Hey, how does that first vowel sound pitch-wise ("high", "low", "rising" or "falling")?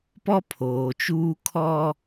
high